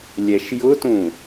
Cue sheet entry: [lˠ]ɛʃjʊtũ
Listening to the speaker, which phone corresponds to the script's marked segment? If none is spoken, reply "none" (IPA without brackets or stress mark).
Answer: lʲ